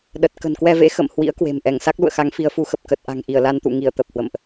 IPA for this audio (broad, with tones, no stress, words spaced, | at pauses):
ɗə˨˩t̚ kə̤˨˩nkwɛ˧vḛ˧˥ xə̰˧˨m hwḭ˧˥ə̯ kwe̤˨˩mʔɛ˧˩ŋ sa˦˥k̚lṵ˧˨ə̯xa˨˦ŋ fi˨˦ə̯fu˨˦xə˨˩p̚ kə˨˩t̚ʔa̤˨˩ŋʔi˧˩ə̯ la˧nt̪ṵ˧˨ ŋi˧˩ə̯ t̪ə˨˩p̚hwə̰˧˨mʔ